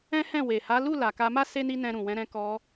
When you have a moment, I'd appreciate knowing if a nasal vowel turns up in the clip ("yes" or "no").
yes